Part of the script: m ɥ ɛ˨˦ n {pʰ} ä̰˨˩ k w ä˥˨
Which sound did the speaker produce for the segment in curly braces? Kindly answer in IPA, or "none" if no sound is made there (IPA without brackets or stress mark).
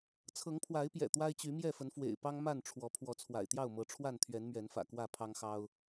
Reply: f